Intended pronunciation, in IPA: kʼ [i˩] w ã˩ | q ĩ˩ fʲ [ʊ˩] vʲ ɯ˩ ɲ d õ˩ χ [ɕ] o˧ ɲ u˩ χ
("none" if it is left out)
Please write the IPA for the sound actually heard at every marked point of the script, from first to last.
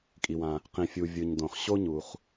i˩, u˩, ɕ

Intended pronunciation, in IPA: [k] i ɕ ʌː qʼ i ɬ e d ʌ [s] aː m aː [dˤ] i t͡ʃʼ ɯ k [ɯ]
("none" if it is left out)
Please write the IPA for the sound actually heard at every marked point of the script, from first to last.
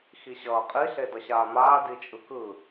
x, ɕ, d, ɯ

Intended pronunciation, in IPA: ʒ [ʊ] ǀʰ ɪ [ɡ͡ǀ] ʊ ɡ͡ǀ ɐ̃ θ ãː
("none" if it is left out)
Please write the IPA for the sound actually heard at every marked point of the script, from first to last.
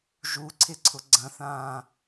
u, ǀʰ

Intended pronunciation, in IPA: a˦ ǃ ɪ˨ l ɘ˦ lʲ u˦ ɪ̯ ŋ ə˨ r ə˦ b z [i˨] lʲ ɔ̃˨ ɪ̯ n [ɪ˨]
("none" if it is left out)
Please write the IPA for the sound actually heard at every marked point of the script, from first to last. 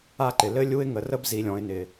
i˨, ɪ˨

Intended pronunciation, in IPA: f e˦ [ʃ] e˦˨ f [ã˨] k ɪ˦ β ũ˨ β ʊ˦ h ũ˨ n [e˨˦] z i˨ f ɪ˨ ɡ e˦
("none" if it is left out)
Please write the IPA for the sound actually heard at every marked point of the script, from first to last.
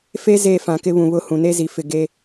z, ã˨, e˦

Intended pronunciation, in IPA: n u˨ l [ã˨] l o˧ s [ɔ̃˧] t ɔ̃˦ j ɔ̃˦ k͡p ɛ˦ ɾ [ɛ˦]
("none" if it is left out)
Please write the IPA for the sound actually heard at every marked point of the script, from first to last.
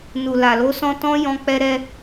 a˨, ɔ̃˧, ɛ˦

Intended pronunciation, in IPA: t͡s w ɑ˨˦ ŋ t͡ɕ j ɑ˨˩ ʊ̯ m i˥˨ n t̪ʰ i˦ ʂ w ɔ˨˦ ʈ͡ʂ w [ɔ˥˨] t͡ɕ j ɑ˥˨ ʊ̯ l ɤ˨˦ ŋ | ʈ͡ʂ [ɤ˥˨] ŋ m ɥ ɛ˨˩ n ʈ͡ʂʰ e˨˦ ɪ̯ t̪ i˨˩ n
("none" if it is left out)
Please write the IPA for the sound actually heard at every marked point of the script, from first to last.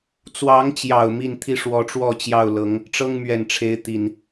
ɔ˥˨, ɤ˦

